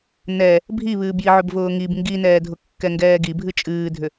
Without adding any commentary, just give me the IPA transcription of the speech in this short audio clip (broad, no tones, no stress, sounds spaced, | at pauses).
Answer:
n ɛ | bʱ i β ɨː b j i ʕ ʏ b v ʊː ŋ i b ŋ ɡ i n ɛː dʱ ʊ kː ɛ ŋ ɡ ɛː ɡ i bʱ ɨ t͡ʃʼ ɨː dʱ ʏ